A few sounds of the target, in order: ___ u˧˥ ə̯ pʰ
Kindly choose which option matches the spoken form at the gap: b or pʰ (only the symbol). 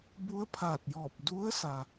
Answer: b